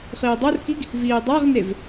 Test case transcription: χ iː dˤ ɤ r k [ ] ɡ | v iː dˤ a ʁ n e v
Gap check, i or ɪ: i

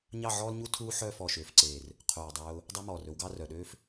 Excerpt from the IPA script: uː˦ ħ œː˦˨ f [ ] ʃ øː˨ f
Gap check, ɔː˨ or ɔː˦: ɔː˨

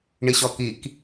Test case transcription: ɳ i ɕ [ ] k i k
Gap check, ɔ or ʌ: ɔ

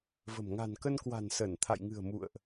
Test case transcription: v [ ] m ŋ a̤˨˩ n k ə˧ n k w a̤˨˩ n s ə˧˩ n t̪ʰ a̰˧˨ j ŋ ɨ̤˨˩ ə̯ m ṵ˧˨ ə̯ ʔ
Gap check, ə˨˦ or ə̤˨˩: ə̤˨˩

